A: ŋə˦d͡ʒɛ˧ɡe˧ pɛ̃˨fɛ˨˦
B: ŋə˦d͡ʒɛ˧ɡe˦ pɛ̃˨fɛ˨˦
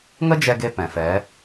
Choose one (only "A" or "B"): A